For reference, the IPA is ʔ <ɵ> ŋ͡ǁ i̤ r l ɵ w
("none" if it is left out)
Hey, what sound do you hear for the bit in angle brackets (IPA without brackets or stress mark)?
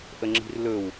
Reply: ə